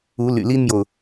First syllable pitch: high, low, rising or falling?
rising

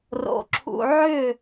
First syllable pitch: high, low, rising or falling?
low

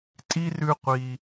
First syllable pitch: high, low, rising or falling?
high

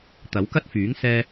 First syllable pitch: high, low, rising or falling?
rising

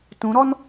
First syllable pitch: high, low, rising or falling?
rising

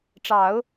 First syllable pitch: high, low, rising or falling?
low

